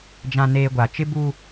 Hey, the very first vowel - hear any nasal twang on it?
yes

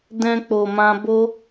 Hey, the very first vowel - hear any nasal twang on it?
yes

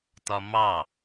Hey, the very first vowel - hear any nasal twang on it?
no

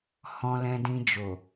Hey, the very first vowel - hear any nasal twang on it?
yes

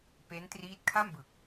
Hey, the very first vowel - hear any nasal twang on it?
no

